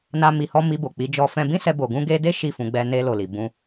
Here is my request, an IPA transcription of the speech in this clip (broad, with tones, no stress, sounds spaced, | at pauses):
n a˦ m i˧ h ɔ˦ m i˧ b o˨ k͡p i˨˦ d͡ʒ ɔ˧ f ɛ̃˧ b ĩ˦ s ɛ˧ b o˨ ɡ ũ˧ ɡ e˧ d e˦ ʃ i˦˨ f ũ˧ ɡ͡b ɛ˧ n e˧ l o˨ l i˨ b ũ˧